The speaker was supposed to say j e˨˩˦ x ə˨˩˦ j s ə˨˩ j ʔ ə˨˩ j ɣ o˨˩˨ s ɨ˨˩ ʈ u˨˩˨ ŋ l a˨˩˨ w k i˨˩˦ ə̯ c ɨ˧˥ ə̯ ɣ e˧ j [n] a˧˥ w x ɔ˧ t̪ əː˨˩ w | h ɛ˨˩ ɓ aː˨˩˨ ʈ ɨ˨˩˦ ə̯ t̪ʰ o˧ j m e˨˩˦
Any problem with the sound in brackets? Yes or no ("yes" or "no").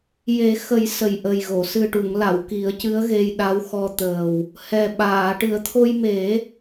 yes